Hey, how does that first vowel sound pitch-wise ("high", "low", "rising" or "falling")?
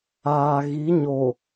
low